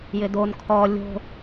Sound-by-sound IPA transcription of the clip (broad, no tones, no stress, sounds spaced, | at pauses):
j ɪ d o n kʰ ɔ lʲ o̤